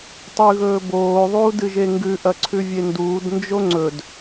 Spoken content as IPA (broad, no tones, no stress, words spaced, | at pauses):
tˤʉɣɵːboː ðˤuːdɨʒeŋɡʉ ʔɐǀʰʉvʲenduːd nd͡ʒoŋ͡ǀɵd